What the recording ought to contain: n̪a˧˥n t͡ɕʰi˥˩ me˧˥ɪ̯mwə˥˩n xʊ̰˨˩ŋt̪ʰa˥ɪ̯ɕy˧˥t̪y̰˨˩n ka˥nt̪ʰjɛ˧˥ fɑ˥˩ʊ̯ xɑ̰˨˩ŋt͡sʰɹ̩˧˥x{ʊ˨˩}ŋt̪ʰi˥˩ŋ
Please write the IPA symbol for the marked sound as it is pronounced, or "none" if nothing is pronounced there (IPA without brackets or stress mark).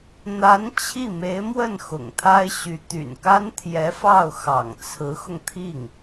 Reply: ʊ˧